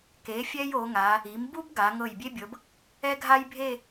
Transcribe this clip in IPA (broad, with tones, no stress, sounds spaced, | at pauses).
k e˩˧ fʲ ɛ˥ j o˩˧ ŋ a˩˧ | i˩˧ m b u˥ b ɡ a˩˧ ŋ ɤ˧˩ j bʲ e˥ bʲ ɤ˩˧ b | ɛ˥ ɡʱ a˥ j bʱ e˥˧